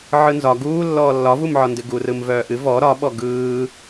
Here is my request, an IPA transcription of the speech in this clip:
ʕɯnzɒ ɡuːlːɔː lːɒvumʕɒndɨ ɡurɯm vœːʔɨ vɔ ɾɒɓɔ ɡɯː

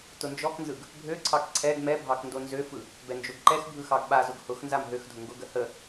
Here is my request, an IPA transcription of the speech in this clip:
tʊnd͡ʒɔknzɯɡ | bʱøǀʰɑk ǀʰɛɡ mɛbʱɑk ndonzøfɯ | bɛnd͡ʒoɡǃɛxbʱɯ xɑɡɓazʊɡ hʊxnzam ɦøxdʱʊ ŋɡʊɡə hə

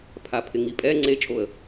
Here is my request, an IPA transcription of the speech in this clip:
pʰapʰɪŋipʼɛ ŋ͡ǀet͡ʃʼoə̯

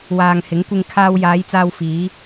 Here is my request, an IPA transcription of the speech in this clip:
waː˨ŋhɪ˨˥ŋkʷɪ˧ŋ kʰaː˧w jaː˨˧jt͡saː˧wfiː˨˧

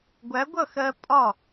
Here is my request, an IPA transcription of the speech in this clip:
ɡʷæ˨˥ɡʷʌ˥˩xɜ˧ pʼɒ˥˩

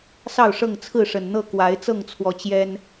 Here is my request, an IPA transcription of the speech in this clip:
sɑ˥˨ʊ̯ʂɤ˥˨ŋ t͡sʰɹ̩˥˨ʂə˨˩nn̪ɤ˥˨ kwa˨˦ɪ̯ t͡sɤ˥˨ŋt͡sʰwɔ˨˦ t͡ɕjɛ˦n

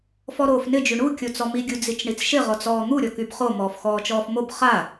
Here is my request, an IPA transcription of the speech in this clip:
fɔɾoːfnɪ d͡ʒyɳu kʲot͡sɔmi ɡʲud͡zit͡ʃɳit͡sʃɪ ʁɔt͡sɔːn̪u ɾʲɔkybχo mɔːfxɔːt͡ʃɔːfmob χa

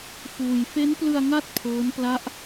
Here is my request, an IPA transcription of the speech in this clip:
fuː˧j fe˦˥nplɯ˧a̯ ŋa˥˩t̚ pʰɤː˦˥n pla˦˥ʔ

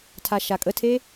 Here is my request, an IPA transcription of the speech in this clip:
tʰaʃakʼətʰe

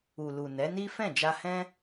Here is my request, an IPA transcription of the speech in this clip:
u˨lu˨ nɛ˨˦ni˦ fɛ̃˦˨d͡ʒa˧hɛ̃˦

